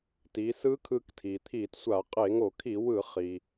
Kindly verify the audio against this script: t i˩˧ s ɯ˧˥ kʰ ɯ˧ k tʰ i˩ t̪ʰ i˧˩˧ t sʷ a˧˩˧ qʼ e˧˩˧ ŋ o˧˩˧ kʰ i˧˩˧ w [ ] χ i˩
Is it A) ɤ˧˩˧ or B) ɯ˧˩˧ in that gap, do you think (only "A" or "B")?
B